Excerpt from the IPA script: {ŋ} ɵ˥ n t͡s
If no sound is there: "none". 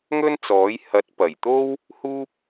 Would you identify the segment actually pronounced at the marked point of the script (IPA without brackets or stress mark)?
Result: ŋ